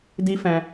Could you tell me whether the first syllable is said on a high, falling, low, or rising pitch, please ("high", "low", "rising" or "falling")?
high